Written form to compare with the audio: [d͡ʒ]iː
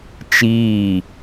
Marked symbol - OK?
no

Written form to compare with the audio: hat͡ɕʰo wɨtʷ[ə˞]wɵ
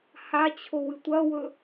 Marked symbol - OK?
no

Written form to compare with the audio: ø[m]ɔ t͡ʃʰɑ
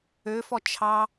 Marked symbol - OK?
no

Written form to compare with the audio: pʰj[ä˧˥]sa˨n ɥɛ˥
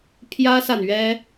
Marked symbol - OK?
no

